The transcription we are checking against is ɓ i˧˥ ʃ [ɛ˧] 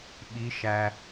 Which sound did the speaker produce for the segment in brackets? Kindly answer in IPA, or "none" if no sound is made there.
æ˧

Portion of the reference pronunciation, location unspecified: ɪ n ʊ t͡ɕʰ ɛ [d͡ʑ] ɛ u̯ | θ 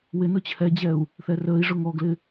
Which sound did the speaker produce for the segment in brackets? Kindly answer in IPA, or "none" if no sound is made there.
d͡ʑ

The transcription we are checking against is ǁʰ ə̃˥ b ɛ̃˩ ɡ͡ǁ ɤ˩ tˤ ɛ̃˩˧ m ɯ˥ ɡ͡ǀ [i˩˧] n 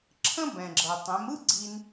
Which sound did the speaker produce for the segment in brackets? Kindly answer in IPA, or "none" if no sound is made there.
i˧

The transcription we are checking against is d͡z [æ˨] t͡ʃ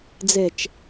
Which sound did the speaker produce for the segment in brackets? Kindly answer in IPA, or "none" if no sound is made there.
ɛ˨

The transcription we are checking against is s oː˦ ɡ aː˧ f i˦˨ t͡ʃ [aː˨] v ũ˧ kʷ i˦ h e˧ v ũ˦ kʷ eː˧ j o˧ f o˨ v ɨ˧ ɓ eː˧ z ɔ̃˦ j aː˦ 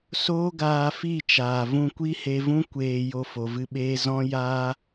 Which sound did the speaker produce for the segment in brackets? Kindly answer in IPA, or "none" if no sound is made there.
aː˨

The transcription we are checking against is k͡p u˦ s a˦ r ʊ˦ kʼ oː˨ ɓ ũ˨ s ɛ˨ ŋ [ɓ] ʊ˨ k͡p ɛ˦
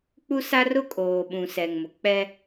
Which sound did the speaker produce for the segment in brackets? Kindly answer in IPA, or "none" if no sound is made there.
m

